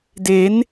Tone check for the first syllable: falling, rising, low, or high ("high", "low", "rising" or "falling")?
rising